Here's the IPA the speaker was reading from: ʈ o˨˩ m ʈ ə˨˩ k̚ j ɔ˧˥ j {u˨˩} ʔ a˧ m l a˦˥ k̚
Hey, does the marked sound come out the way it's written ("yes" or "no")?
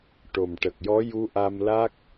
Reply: no